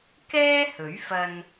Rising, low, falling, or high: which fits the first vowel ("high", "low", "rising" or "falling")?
high